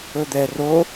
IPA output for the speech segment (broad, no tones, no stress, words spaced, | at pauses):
ɵd̪ɛ ro